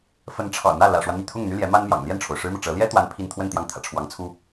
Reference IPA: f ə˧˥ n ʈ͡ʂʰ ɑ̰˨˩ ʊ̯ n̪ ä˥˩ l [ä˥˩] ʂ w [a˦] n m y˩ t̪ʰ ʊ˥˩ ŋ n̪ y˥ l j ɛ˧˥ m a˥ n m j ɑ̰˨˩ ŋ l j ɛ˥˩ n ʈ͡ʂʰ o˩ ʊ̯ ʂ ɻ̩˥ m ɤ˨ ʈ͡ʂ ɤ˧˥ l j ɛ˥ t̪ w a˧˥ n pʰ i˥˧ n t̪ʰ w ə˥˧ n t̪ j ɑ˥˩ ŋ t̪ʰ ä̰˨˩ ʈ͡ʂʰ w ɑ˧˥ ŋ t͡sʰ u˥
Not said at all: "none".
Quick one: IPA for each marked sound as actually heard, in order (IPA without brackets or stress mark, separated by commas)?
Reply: ä̰˨˩, a˦